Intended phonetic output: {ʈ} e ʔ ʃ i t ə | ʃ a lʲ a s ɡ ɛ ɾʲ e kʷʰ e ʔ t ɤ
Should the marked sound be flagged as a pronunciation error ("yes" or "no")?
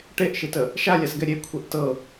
no